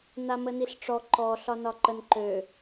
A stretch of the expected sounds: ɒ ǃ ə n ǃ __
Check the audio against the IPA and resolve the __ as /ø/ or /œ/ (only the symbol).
ø